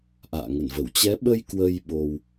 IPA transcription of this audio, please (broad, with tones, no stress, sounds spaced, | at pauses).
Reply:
ʔ a̰ː˧˨ ŋ ə˧˩ n v ə˧˩ w t͡ɕ ɛ˨˦ ɓ ə˧ j k w ə˧ j ɓ o˧ w